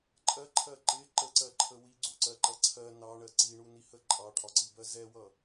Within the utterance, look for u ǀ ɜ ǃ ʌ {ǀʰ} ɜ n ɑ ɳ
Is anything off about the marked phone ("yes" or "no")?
no